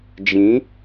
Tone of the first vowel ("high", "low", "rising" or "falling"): rising